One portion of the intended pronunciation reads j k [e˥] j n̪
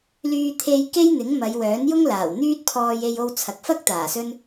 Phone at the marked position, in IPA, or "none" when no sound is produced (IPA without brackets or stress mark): e˥